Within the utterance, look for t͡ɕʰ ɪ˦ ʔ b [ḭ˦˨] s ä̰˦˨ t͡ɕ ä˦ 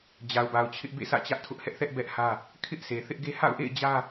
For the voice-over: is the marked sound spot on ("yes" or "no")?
no